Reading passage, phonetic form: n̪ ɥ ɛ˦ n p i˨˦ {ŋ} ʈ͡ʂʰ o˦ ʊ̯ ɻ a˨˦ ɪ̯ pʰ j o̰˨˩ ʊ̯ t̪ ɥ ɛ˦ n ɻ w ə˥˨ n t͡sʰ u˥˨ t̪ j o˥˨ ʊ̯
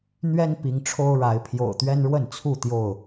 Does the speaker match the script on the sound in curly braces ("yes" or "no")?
yes